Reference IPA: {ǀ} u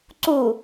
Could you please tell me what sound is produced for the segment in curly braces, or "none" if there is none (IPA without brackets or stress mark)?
ǀ